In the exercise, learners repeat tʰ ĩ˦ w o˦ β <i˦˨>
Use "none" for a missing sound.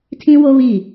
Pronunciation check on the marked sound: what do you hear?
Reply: i˦˨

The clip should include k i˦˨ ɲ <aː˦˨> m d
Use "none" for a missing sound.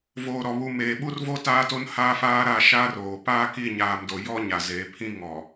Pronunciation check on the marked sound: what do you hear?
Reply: aː˨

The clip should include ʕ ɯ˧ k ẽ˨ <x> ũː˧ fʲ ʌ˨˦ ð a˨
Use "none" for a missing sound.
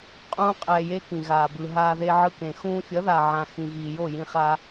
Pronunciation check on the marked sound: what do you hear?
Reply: x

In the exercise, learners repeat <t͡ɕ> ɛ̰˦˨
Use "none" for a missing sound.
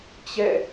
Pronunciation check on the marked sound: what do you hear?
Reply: t͡ɕ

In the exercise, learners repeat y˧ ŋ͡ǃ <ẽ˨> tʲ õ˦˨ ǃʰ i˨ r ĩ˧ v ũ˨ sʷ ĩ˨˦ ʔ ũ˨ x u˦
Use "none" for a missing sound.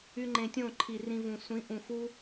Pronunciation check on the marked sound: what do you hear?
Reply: ẽ˨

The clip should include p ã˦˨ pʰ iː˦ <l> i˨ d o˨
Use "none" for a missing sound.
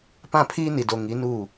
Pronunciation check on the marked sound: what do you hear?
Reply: n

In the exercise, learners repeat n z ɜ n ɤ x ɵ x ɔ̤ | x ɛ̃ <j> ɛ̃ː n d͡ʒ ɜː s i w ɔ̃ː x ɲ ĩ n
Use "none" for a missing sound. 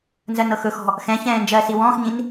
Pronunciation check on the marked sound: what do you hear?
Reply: ç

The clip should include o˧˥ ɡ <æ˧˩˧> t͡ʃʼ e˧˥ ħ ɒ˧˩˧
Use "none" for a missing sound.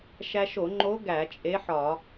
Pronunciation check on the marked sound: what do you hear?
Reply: æ˧˩˧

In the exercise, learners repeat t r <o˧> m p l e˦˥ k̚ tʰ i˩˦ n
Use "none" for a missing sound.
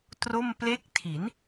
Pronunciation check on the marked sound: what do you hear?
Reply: o˥˩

